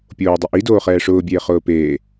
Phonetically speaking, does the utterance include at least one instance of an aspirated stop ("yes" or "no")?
no